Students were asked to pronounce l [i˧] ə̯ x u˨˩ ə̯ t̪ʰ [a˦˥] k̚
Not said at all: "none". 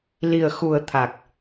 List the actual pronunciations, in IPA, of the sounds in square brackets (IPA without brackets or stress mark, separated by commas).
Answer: i˨˩, a˨˩